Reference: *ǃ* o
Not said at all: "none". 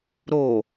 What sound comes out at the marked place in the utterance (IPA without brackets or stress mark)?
ɾ